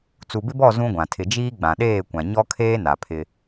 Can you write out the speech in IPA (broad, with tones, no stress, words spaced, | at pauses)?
t͡su˨bɪ˦bɔ˦˨ zũ˦ɡʷã˨ tʰɪ˨d͡ʒiː˦ ɡ͡bã˨ɗeː˦˨kʷã˨ ɲɔ˦kʰeː˦ na˨pʰɪ˦